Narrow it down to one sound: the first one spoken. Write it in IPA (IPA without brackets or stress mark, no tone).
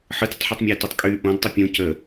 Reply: ħ